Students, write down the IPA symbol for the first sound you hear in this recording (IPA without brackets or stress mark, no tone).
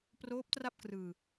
p